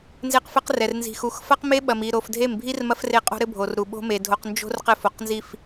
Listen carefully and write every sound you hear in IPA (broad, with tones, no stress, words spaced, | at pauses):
nze˦qfɘ˦qrɛ˨r nzi̤˨xu˨x fɐ˦qme˦ɓɐ˨mi˨ ɾo˨f dʱe˦˨m bʱi˦r mɐ˦fre˦˨qʼo̤˦ɾɘ˦ bʱo˨rɾu˨ɓo̤˦me˨ dʱo˨qnd͡ʒo̤˦r qɘ˦fo˨qnzi˦˨f